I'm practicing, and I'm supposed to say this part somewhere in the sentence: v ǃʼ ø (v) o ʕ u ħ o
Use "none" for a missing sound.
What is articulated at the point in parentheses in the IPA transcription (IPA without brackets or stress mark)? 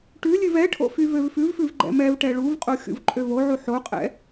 v